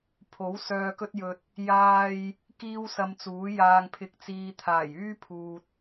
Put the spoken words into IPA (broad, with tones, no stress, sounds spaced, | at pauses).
pʰ o˨˥ w s œː˨ k ɵ˧ t̚ j ɵ˨ t̚ | j aː˥ j | k iː˥ w s ɐ˧ m t͡s uː˨˥ j aː˨ ŋ pʰ ɪ˨ k̚ t͡s iː˨ t̪ʰ aː˨˩ j yː˥ pʰ uː˨ t̚